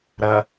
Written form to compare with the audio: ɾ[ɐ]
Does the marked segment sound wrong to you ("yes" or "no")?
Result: no